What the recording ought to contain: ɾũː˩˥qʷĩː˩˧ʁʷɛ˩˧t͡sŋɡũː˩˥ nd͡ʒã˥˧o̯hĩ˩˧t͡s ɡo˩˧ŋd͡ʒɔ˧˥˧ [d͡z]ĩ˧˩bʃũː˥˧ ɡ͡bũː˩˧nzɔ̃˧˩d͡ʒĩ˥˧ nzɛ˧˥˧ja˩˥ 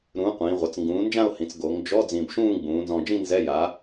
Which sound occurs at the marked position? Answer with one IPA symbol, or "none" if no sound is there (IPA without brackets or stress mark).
d͡z